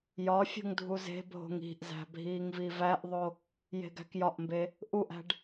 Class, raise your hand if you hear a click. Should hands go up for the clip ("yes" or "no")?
no